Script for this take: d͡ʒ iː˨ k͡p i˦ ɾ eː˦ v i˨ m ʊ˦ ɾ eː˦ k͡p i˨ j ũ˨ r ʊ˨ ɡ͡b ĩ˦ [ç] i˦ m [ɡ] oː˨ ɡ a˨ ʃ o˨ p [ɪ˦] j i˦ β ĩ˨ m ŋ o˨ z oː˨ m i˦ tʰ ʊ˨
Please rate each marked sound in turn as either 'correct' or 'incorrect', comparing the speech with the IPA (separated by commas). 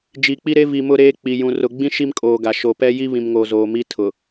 incorrect, incorrect, incorrect